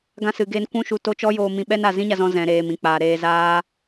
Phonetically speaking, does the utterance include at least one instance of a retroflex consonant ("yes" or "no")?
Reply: no